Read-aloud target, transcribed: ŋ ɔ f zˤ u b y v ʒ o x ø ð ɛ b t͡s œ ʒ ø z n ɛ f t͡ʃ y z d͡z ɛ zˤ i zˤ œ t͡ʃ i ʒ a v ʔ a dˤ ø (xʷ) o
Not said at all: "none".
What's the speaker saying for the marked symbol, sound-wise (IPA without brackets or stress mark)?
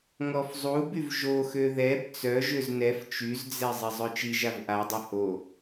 h